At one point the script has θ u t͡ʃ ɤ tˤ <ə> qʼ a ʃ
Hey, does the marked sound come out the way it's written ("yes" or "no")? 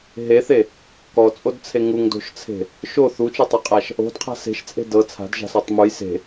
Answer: no